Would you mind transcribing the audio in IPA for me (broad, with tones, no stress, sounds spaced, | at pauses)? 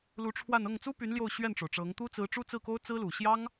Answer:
l u˧˥ ʈ͡ʂʰ w a˥˧ n ɤ˥˩ ŋ t͡s u˥ p y˧˥ n l j o˥˧ ʊ̯ ɕ ɥ ɛ˥˩ n ʈ͡ʂ o˩ ʊ̯ ʈ͡ʂ ɤ˧˥ ŋ t̪ u˥ t͡s ɹ̩˧˥ ʈ͡ʂ u˥ t͡s ɹ̩˥˩ k o˥ ʊ̯ t͡s ɹ̩˥ l u˨˩ ɕ j ɑ˥ ŋ